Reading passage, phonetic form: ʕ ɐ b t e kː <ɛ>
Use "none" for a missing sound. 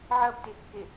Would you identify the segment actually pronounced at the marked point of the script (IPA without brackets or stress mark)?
e